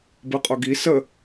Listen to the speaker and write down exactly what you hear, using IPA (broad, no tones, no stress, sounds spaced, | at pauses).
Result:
b ɯ qʼ o ɡ i s ə